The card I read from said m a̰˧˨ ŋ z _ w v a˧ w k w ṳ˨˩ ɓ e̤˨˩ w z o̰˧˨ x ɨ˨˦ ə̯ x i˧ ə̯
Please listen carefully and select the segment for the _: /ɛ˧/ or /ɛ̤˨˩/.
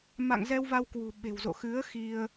ɛ˧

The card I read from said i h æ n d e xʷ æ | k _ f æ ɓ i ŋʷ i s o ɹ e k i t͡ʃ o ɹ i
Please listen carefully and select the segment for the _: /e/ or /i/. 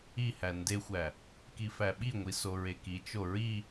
i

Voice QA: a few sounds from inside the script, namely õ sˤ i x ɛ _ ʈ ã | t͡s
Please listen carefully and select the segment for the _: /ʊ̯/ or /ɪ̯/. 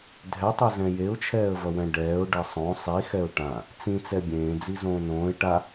ʊ̯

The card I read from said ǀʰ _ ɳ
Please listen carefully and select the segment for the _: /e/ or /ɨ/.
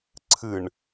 ɨ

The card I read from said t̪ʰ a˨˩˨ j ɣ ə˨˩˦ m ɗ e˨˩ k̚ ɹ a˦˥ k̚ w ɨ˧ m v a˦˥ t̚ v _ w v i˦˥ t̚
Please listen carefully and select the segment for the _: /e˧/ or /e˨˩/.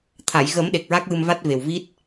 e˨˩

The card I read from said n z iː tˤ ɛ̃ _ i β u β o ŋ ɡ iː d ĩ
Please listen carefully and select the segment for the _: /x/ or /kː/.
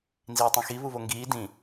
x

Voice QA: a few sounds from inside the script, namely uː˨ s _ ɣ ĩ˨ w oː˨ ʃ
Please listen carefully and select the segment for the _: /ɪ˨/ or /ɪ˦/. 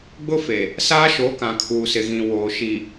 ɪ˨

